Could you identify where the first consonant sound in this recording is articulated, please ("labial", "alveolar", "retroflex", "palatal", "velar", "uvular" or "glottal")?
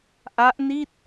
glottal